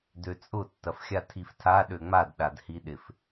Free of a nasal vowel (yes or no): yes